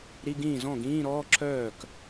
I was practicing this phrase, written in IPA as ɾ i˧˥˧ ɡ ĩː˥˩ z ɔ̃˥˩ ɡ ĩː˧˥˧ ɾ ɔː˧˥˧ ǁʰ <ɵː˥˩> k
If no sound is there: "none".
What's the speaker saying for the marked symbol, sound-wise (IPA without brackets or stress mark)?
œː˥˩